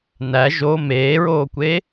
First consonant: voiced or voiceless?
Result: voiced